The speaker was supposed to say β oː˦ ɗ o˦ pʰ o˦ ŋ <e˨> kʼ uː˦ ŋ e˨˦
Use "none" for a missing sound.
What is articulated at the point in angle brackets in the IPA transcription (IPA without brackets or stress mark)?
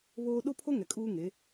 ɛ˨